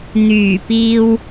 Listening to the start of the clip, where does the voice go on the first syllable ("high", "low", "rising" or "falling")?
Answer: low